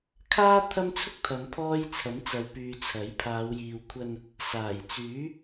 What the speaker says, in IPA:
kʰ aː˥ t̪ʰ ɐ˥ m t͡sʰ ʊ˥ k̚ t̪ʰ ɐ˨˧ m pʰ ɔː˥ j t͡sʰ ɐ˨˥ m t͡s ɐ˨˧ w p yː˨ t͡sʰ ɐ˨˥ j pʰ aː˨˧ w j iː˨ w kʷʰ ɐ˧ n | s aː˨˩ j t͡s yː˨˥

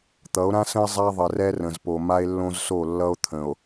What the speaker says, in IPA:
t̪ ʌ˨˦ o̯ ɾ ã˦ s ə̃˦ e̯ zˤ a˦ ðˤ ə˨ r ɛ˦ r ə̃˨ z p o˨ m a˦ e̯ lː õ˦ z s o˦˨ lː ʌ˦ o̯ t̪ʰ ə̃˨ o̯

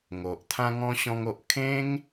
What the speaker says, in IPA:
ŋ o˨ ʔ t̪ʰ ã˦ ŋ ɔ̃˦ ɕ ɔ̃˦ ŋ o˦ ʔ kʰ ẽ˦ ŋ

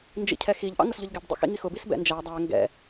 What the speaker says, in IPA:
n d͡ʒ ḭ cʰ ɛ x i ʎ ʔ ɑ̰ ŋ ʊ s ʎ ʊ ʎ ɡ ɛ b dˤ ḭ x ḭ ŋ i x ʊ b i s b ɛ̰ n d͡ʒ æ dˤ æ ŋ ɡ ɛ̰

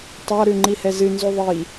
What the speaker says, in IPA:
tˤ a ɾ ʉ ŋ͡ǃ i h ɛ z ɨ n z u ðˤ i

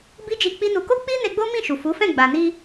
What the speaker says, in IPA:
b i˦ d͡ʒ i˧ k͡p i˦ n u˧ k o˦ k͡p i˦ n e˧ ɡ͡b o˦ m ĩ˦˨ ʃ u˨ f u˨˦ f ɛ̃˦˨ ɡ͡b a˨ n i˧

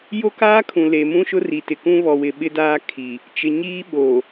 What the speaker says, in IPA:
j o˦ k aː˦ kʰ ũ˨ l e˨ m ũ˦ ʃ ʊ˦ r i˨ t ɪ˨ k ũ˦ β ɔ˨ w ɪ˨ ɓ ɪ˦ d aː˦ kʰ i˨ | t͡ʃ ɪ˨ ɲ iː˦ ɓ oː˨

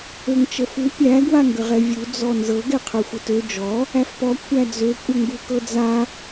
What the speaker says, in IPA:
ø ŋ t͡ʃ ə f u pʲ æ ɡ w a ŋ ɡ ə ʁ ɛ vʲ u d͡z ɔ n z ɤ ɡ ɛ qʰ ø xʷ ə t ø d͡ʒ ɔ | æ f p ɔ kʷʰ æ d͡z ø kʷʼ ə ŋ ɡ u k ɤ d͡z a

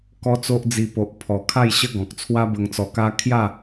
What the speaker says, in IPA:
k ɔ˦ t͡s o˦ ʔ d͡z i˧ p o˨ ʔ pʰ ɔ˨˩ kʰ a˥˧ j ɕ ə˦ ɡ ɔ̃˨ k̚ t͡sʰ w a˦ b ə˧ ŋ t͡s ɔ˧ k a˦ kʰ j a˥˧

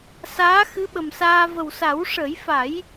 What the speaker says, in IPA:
s aː˧˥ x ɨ˧˥ ɓ ə˨˩ m s aː˧ v ə˨˩ w s a˨˩˦ w ʂ ə˨˩˦ j f a˨˩˦ j

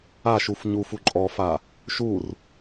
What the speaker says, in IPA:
a ʃ u f ɲ u f u ǃʼ ɔ f a | ʃ u r

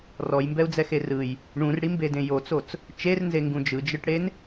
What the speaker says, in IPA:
r ɔ j m b ɛ u̯ d͡z ɛ x e r ɯ j | ɳ ũ r ɽ i m b e d ẽ j o t͡s o t͡s | t͡ʃ e r n z e ŋ ɡ ũ d͡ʒ ɯ d͡ʒ ɯ ʈ ɽ e n

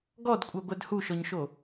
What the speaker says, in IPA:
ɡ ɔ d kʷʼ ɜ ɡʷ ɛ d h u ʃ ɔ ɲ ʃ o

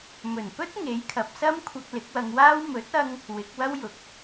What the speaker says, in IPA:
m ɵ˨˩ n p ɵ˥ t̚ ŋ e˨˥ j kʰ ɐ˨ p̚ s ɐ˥ m kʷʰ ɐ˧ k̚ l ɪ˨˥ k̚ w ɐ˧ ŋ w aː˥ w m ɵ˨˥ t̚ ɐ˧ ŋ | w ɪ˨˥ k̚ w ɐ˥ w j ʊ˨˥ k̚

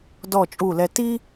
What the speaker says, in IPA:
d ɔ˦˨ t͡ʃʼ u˦˨ l ɛ˦ t i˦

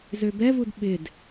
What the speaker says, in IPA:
z ø b ɛ v u d ɓ ɪ d

